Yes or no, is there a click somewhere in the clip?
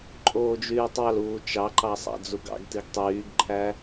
yes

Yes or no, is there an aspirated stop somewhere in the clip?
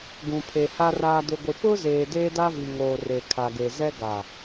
yes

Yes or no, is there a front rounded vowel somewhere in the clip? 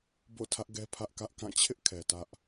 no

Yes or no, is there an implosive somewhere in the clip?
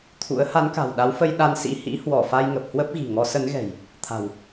yes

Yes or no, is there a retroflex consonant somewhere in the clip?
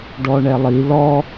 yes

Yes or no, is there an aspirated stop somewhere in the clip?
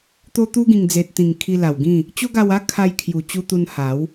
yes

